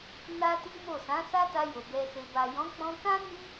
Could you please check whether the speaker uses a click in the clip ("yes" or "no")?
no